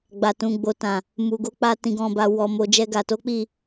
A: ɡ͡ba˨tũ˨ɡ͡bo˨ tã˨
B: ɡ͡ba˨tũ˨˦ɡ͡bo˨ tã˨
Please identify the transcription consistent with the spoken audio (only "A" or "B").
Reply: A